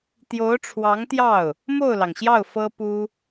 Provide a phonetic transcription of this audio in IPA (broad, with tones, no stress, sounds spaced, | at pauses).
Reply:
t̪ j o˧˥ ʊ̯ ʈ͡ʂʰ w ɑ˧˥ ŋ t̪ j ɑ˥˩ ʊ̯ | m o˥˩ ʊ̯ l ɑ˩ ŋ ɕ j ɑ˥˩ ʊ̯ f ɤ˥ p u˥